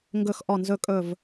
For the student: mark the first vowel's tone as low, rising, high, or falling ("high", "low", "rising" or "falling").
low